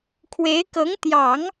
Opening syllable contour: rising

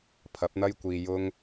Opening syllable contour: rising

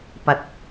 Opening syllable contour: rising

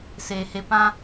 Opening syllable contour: low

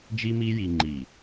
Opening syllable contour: high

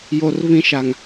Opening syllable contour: low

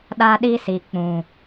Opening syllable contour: high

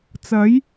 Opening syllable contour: rising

